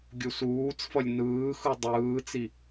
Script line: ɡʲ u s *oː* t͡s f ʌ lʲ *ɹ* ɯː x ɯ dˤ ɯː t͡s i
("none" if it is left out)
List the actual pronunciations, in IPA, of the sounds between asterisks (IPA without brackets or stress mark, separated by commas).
uː, n